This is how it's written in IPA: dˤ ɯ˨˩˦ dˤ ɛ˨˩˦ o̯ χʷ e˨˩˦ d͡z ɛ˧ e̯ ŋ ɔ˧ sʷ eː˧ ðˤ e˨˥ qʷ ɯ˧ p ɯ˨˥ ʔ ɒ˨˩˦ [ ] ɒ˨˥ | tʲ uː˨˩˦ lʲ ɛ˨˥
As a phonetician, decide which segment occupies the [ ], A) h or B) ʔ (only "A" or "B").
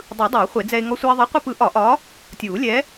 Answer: B